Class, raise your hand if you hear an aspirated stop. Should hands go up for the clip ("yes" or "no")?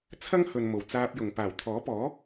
yes